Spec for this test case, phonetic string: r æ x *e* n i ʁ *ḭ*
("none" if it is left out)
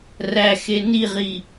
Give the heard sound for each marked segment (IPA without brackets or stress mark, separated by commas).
e, i